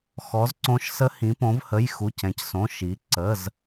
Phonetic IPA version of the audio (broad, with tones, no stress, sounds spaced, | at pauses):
x ɔ˨˥ z ǀ õ˦˥ ʃ s ə˦˥ h ĩ˨˥ p õ˨˥ v h ə˧˥˧ j x u˧˥˧ c ɛ̃˨˥ c s õ˧˥˧ ʃ i˨˥ ǀ ə˧˥˧ z